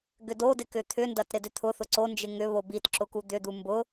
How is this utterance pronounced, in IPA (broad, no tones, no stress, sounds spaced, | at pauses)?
ɡ ʏ d o d ɪ k ʏ t̪ʰ ʏ n d ɐ t ɾ ɪ d ʏ t̪ʰ ʊ θ ʊ ǀ o n d͡ʒ ɪ ŋ ʏ β o b i t ǁ ʊ k u d̪ ʏ d̪ u m b ʊ